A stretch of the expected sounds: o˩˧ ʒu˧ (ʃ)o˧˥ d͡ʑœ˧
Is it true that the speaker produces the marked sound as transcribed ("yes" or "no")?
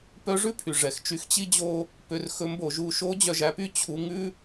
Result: yes